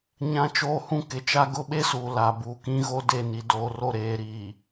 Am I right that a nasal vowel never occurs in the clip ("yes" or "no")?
no